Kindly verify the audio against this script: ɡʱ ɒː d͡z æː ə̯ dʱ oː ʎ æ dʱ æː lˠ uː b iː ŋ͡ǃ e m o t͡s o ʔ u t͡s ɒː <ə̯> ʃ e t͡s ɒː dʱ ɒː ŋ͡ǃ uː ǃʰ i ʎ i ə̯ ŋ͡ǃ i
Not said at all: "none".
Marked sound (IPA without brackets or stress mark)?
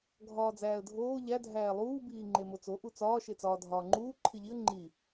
none